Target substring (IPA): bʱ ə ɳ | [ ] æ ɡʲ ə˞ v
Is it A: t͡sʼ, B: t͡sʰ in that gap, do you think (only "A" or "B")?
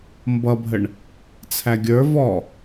B